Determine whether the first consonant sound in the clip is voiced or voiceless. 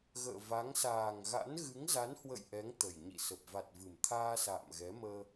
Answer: voiced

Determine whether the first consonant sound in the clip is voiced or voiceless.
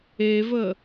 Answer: voiced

